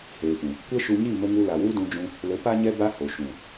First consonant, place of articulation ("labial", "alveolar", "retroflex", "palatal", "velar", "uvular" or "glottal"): glottal